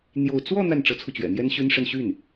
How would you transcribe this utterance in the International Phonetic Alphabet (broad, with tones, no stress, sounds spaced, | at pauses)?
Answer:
n̪ j o˥˧ ʊ̯ t͡s w ɔ˥˧ n̪ a˥˩ n ʈ͡ʂ ɤ˧˥ t͡sʰ u˧ t͡ɕ ɥ ɛ̰˨˩ n̪ j ɛ˥ n ɕ y˥ n ʂ ə˥˧ n ɕ y˥˩ n